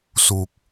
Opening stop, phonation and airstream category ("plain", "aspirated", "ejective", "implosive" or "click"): plain